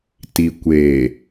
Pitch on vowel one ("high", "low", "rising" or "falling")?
low